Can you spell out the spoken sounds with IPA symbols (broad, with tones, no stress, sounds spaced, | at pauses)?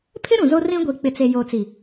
pʰ ɪ˦ ɾ ũ˨ z o˦ r ĩ˦ ɡʷ i˨ k͡p ɪ˨ t͡s e˨ j oː˨ t͡s i˨